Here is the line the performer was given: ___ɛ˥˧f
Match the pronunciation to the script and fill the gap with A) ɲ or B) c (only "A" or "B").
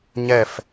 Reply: A